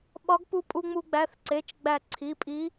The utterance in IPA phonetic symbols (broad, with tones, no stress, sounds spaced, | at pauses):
ɓ ɒ˧˥ ɡ p u˧ pʼ u˧ ŋ͡m u˧ ɡ͡b æ˩˧˩ θ ǀ e˩˧˩ t͡ʃ ɡ͡b æ˧˩ ǀʰ i˩˧˩ pʼ i˧˥